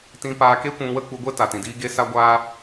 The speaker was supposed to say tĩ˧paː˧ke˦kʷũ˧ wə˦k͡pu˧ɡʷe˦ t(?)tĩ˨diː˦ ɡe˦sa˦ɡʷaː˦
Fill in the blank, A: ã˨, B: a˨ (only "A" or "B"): B